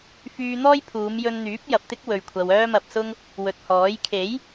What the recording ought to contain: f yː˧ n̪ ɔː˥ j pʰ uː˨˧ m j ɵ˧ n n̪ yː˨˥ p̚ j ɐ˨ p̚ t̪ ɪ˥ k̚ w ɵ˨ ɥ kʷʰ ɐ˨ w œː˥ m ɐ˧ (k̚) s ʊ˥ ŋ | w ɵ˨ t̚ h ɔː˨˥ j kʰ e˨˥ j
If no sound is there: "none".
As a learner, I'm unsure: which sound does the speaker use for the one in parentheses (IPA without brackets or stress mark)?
p̚